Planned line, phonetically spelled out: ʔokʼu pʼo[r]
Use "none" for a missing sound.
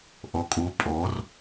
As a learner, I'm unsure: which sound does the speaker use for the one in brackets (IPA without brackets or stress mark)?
r